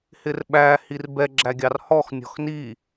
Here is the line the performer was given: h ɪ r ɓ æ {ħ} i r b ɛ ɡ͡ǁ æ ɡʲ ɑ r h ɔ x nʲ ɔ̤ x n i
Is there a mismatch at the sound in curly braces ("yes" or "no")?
yes